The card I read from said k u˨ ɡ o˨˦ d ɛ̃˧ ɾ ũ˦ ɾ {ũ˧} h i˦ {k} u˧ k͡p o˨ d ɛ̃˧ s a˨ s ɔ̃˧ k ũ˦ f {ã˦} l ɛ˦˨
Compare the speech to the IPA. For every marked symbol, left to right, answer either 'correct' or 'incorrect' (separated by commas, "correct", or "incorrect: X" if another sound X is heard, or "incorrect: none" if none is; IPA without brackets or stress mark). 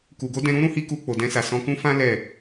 incorrect: ũ˦, correct, correct